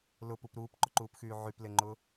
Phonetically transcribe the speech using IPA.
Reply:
l ʊ p u p ɾ uː p ǃ ʊ ǃ uː p x yː ʕ y p l e ŋ͡ǃ ʊ

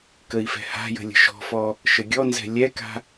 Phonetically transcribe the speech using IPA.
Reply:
k ə i̯ f ɛ̤ h a̤ j ə̤ lʲ ə̤ ʃ ɔ̤ f ɔ | ʃ ə ɡʲ ɔ n z ɛ̤ lʲ ɛ k a̤

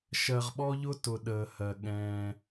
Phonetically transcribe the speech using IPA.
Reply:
ʃ ɜ˨ ʁ ɓ ɔ˦ ʎ ʊ˦ t ʊ˨ ɗ əː˨ h ɜ˨ ɠ ɛ̃ː˦

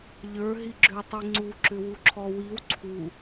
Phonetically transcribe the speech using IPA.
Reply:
ʎ ə˞ ɦ i ɡ͡ǁ ʏ w tˤ i ŋ͡ǀ u ǁ ʏ w u ǁʰ ɔ w i w ǀʰ u

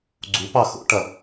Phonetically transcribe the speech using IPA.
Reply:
ɡ͡ǀ u p ɑ x o̰ ʈ ɐ

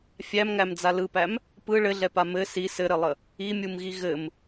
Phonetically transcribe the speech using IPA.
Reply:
fʲ æ m ŋ æ m d͡z a l ɯ p æ m | p ɯ ɭ ɘ ɮ ɛ p a m ɘ s i s ɘ ɾ ɘ lˠ ə | i mʲ u m ɣ i ɣ ɘ m

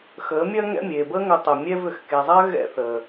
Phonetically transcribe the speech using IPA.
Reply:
x əː˨˦ mʲ ɐː˦ ŋ ɛ̰˦ mʲ eː˨ b əː˦ ŋ ʏ˧ tˤ ə˨ mʲ ɛ˦ v ʏ˨ x k e˨ zˤ ɜ˦ ɣ ɛ̰˦ θ əː˨

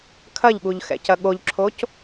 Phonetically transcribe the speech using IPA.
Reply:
kʰ ɐ ʎ ɠ u ʎ x ɛ̰ c ɐ ɠ o ʎ ǁʰ o c

